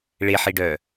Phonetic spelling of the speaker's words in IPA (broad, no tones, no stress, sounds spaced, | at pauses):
ɭ e ħ i ɖ œ